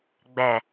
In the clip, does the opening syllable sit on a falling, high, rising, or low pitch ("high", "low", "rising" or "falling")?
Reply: low